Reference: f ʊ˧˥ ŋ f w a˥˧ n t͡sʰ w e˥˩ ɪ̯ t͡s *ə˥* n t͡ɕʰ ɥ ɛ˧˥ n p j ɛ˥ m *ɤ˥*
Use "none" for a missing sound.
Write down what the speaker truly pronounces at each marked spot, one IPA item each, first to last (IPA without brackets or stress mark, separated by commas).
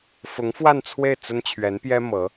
ə˥, ɤ˧˥